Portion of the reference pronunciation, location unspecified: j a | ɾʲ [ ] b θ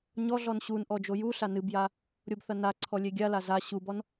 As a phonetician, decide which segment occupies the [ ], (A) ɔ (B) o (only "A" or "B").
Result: B